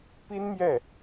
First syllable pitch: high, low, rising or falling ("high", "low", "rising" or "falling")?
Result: high